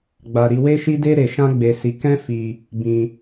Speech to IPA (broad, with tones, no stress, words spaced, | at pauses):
ɡ͡ba˧ ɾi˧we˦ʃi˦de˦ ɾe˧ʃã˦ɡ͡be˧si˧ kɛ̃˦fi˧ | bĩ˧